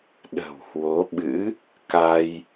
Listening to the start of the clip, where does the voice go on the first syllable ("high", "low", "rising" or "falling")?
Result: low